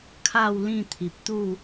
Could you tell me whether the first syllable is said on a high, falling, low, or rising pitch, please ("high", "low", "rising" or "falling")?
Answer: falling